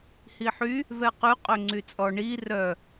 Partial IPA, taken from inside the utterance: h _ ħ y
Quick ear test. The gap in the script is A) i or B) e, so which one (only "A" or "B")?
A